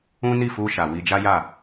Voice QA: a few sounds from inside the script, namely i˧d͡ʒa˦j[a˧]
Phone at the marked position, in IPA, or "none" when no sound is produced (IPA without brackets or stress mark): a˦˨